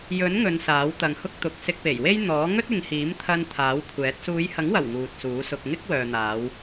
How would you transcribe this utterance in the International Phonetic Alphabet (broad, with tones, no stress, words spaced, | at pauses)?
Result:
jɵ˨˥n ŋɵ˨˧nsaː˨˥wt̪ɐ˨ŋ hʊ˥k̚t̪ʊ˨˥k̚ sɪ˧k̚pe˨˩jwe˥j n̪ɔː˨˥ ŋɵ˥t̚ɪ˨˧ŋhiː˨˥mt̪ʰɐ˧n t̪ʰaː˨˥wkʷʰɛː˨˥t̚ suː˨˧jhɐ˨˥ŋwɐ˨˩w ŋuː˨t̚suː˨˥ sʊ˧k̚ ŋɪ˥k̚wœː˨n̪aː˨˧w